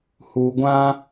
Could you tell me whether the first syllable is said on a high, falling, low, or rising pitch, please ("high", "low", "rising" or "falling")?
low